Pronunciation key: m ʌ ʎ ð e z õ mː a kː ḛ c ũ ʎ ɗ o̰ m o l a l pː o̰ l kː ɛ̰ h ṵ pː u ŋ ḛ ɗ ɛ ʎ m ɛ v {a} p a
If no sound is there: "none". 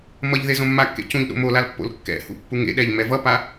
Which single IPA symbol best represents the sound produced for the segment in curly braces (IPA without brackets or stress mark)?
ʌ